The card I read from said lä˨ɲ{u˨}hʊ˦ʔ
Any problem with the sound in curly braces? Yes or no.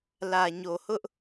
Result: yes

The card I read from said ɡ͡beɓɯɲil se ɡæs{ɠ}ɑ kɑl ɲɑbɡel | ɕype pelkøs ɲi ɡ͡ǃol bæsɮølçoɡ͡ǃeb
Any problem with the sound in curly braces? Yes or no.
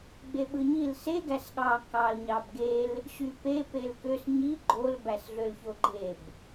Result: no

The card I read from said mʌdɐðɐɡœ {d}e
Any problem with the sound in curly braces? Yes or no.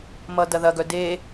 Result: no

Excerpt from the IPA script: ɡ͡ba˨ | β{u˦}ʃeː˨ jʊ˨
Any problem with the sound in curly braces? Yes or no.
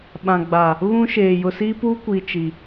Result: yes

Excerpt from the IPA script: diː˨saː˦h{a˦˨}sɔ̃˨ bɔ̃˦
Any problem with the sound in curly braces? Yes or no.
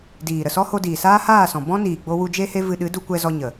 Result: yes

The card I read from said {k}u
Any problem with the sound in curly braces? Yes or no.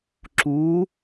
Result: yes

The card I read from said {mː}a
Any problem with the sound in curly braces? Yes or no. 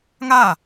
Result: yes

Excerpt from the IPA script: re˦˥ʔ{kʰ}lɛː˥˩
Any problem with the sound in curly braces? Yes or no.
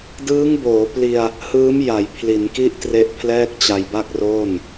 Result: yes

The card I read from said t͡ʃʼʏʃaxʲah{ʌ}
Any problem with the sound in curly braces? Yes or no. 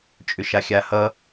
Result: no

